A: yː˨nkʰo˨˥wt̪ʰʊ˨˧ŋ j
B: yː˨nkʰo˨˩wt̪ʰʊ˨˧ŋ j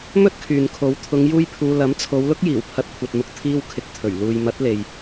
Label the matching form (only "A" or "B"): A